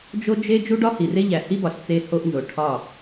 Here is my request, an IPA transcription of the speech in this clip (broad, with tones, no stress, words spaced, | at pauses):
d͡ʒo˦d͡ʒe˦ d͡ʒu˦ɖɒ˦hi˨ re˦ʎæ˨hi˦bɒ˨ɬ t͡se˦ho˦ʔnzo˨ ʈʰɒ˦˨